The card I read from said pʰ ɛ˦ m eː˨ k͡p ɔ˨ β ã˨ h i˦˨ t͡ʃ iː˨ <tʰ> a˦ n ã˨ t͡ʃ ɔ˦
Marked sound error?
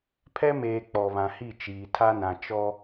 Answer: no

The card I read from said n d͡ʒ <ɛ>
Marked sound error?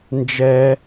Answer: no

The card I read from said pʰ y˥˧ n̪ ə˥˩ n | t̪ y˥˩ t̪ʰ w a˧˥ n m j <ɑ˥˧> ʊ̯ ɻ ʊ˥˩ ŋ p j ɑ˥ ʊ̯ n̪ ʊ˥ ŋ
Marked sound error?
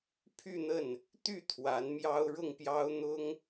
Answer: yes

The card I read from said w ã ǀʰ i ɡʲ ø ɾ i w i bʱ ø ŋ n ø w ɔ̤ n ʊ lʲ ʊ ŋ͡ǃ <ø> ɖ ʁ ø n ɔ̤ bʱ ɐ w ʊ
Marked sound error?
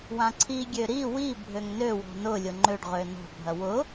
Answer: no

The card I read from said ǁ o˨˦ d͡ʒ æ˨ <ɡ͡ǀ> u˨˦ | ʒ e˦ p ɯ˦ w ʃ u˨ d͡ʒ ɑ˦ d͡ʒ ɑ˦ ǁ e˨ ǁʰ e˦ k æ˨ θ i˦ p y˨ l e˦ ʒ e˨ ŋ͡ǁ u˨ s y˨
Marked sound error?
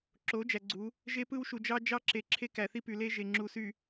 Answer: no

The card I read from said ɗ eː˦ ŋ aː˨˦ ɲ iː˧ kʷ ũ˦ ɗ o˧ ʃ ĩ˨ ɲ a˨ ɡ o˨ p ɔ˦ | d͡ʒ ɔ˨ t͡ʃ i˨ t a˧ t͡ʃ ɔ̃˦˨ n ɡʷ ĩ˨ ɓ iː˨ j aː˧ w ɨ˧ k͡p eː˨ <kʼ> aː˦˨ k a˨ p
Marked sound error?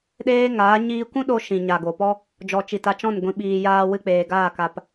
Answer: yes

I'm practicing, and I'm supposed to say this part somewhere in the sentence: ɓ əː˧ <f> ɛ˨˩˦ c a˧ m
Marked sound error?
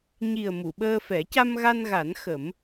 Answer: no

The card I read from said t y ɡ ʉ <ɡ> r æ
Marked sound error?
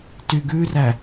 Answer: yes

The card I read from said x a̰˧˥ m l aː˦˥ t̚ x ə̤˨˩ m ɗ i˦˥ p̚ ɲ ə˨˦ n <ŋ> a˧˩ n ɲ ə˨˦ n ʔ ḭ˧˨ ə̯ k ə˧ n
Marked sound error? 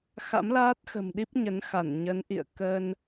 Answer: yes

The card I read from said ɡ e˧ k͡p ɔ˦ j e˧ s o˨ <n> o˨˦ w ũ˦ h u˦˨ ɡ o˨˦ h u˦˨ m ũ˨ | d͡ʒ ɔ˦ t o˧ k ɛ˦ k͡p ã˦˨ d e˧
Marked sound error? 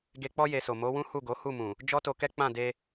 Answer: yes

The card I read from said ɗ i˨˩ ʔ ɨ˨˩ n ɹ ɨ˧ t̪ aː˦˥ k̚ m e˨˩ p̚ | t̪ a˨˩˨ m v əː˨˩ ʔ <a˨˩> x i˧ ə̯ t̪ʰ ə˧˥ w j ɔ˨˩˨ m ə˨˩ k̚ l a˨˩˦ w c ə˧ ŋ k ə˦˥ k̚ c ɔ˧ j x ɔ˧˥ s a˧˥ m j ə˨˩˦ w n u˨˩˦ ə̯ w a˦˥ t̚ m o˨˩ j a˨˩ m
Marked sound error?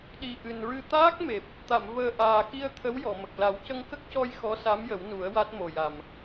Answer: yes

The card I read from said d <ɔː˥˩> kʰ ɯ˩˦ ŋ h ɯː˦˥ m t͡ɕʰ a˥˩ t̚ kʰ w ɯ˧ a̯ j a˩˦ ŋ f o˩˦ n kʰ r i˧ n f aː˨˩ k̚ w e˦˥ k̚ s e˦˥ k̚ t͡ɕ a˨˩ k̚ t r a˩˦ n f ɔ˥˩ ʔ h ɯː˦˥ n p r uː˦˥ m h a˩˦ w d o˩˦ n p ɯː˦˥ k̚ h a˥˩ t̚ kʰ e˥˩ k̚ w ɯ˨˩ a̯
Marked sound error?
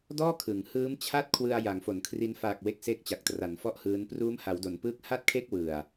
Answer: no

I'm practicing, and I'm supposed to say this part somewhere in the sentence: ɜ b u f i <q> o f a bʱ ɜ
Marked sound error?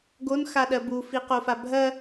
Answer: no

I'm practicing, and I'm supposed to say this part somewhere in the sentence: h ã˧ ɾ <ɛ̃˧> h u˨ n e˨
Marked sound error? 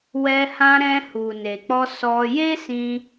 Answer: no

